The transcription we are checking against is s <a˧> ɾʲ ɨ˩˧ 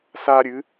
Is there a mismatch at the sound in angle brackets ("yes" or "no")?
no